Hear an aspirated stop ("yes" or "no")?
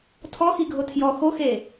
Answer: yes